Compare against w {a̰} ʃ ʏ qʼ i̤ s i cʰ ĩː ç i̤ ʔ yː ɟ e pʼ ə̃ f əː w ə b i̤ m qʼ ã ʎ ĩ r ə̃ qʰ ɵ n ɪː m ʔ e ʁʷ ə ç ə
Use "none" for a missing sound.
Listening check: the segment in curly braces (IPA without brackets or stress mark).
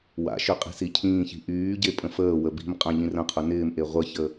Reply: a̰